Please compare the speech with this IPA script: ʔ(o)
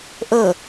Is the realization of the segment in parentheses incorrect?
yes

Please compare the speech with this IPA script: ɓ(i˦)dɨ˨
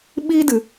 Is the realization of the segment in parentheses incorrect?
no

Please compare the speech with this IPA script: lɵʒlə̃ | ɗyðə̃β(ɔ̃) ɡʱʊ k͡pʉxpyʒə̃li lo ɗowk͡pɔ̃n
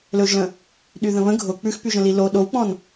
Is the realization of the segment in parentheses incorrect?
yes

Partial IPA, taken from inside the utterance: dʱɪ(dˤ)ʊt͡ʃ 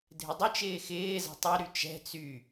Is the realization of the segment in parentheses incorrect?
no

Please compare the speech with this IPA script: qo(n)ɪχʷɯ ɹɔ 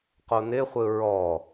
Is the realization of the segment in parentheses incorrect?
no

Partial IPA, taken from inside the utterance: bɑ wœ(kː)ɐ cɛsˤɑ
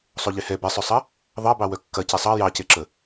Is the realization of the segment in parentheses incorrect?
no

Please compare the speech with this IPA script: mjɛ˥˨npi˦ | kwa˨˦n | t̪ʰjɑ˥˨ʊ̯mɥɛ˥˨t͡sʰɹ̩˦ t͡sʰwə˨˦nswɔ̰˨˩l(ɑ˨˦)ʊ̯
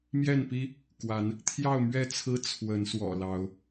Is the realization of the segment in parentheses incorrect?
no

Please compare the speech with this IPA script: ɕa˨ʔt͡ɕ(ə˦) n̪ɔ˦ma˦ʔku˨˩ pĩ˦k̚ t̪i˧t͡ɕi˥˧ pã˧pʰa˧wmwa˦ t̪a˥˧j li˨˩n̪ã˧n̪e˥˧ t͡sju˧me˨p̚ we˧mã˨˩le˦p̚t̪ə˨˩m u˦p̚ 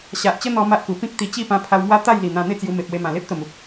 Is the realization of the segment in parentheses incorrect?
no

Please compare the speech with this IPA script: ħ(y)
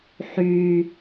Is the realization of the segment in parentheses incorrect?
no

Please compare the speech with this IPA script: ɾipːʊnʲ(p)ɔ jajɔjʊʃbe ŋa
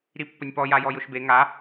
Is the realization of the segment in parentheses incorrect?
no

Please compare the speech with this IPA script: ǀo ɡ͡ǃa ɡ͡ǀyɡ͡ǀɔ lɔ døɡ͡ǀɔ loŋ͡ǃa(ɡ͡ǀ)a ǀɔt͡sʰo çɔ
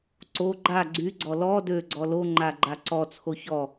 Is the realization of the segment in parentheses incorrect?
yes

